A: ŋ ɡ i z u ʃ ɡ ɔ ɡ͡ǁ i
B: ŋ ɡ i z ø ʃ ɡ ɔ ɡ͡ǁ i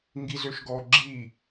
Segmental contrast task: B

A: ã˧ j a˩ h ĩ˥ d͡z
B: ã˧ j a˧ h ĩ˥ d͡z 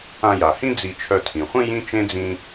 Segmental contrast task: A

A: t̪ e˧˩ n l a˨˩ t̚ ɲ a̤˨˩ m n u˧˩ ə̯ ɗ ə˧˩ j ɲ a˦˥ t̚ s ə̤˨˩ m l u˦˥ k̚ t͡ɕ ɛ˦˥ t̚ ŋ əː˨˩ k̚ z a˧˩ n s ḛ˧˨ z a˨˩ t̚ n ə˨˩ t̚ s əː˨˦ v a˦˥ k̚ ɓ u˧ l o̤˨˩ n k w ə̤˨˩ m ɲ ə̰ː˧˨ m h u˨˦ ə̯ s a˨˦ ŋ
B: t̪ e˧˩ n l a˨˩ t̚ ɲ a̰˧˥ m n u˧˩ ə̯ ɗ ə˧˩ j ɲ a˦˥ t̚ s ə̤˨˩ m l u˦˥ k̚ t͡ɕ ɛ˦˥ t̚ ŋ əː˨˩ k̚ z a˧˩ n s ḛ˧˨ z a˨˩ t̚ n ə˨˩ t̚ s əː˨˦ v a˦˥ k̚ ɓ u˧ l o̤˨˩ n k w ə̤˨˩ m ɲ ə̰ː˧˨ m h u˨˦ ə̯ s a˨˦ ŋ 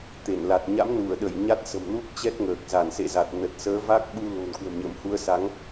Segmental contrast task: B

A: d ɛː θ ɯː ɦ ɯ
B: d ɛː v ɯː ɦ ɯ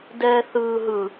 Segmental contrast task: A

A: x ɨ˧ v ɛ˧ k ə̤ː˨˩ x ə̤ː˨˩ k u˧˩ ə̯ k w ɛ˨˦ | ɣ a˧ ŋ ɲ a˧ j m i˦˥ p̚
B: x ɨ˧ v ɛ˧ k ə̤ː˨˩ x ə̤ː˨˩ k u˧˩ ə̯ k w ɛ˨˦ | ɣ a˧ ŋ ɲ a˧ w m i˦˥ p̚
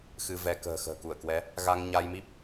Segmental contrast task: A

